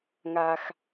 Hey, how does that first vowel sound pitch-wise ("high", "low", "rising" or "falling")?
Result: low